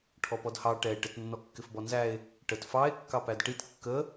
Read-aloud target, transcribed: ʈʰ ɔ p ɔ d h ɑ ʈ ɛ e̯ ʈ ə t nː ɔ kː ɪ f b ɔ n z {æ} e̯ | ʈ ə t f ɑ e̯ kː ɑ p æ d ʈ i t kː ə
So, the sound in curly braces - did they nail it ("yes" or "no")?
yes